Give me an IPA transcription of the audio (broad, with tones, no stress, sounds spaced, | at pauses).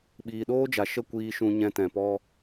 ɓ iː˨ ɗ oː˦ d͡ʒ a˨ ʃ ə˦˨ kʷ iː˧ ʃ ũ˧ ɲ ɛ̃˧ t ɛ̃˨ p ɔ˧